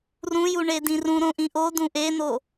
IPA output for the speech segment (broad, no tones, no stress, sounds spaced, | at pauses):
r ũ j u ɳ e d ĩ r ũ ɾ õ ʔ ĩ ʔ o d ũ ʔ e n o